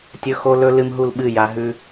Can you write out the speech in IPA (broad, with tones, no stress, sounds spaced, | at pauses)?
tʲ ɵ˦ x o˦ l ɵ˦ l ɨ˦ m ɦ u˦ l ɓ ɨ˦˨ j a˦ ɦ ʉ˦